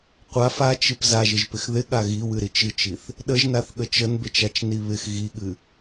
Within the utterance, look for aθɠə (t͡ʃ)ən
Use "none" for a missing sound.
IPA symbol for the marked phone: t͡ʃ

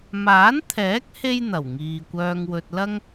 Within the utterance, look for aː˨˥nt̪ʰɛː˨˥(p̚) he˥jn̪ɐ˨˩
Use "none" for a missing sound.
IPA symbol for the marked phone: k̚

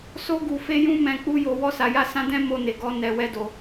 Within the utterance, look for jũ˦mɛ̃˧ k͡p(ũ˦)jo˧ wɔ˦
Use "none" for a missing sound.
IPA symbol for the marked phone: u˦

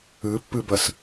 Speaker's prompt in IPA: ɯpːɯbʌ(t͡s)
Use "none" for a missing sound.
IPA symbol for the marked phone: s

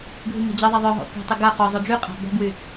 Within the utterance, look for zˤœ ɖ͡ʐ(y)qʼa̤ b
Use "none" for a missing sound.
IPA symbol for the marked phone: y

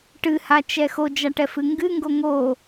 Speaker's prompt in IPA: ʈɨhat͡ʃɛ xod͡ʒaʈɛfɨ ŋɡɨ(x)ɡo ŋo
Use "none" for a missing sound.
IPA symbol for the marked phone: ŋ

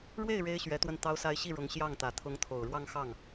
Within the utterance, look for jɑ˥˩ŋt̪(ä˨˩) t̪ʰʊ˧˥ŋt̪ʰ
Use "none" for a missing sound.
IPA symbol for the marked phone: ä˨˩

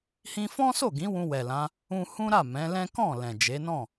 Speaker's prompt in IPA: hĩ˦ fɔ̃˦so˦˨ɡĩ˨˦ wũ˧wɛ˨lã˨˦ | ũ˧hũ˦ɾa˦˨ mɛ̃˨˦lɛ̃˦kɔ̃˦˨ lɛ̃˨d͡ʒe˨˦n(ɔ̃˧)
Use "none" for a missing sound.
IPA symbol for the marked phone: ɔ̃˦˨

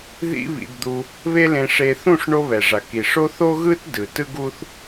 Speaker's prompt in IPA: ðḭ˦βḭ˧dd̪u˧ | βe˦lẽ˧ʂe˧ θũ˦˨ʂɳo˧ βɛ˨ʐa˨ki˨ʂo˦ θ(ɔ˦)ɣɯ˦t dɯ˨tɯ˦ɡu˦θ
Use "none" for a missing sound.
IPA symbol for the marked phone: o˦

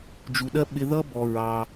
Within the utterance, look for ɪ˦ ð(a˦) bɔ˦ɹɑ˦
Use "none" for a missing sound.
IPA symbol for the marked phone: ʌ˦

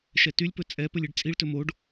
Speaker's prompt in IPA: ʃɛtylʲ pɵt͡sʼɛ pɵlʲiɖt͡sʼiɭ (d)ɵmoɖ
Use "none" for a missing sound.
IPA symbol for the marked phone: t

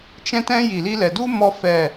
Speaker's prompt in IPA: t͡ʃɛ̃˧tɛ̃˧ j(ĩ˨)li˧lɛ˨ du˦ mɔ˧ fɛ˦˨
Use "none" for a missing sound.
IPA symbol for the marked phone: i˨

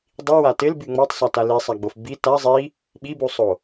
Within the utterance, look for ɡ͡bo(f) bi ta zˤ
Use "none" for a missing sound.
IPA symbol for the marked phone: f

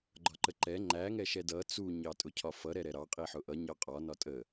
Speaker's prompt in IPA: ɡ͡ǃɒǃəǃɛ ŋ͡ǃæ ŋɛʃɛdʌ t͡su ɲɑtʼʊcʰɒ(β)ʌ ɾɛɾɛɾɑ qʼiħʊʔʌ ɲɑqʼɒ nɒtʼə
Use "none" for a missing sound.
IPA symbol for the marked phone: f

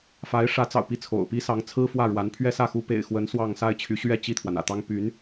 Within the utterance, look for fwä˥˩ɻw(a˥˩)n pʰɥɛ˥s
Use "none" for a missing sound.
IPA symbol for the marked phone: a˧˥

